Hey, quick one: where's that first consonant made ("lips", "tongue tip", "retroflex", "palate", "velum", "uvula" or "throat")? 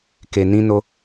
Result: velum